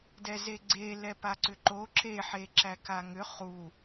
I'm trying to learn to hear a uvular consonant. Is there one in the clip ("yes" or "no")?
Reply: yes